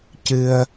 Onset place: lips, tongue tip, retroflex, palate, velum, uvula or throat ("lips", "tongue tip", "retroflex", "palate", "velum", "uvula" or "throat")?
palate